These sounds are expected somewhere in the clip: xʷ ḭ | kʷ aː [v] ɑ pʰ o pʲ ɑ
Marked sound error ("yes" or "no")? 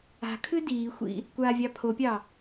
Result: yes